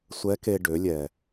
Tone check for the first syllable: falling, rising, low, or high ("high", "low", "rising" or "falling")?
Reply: rising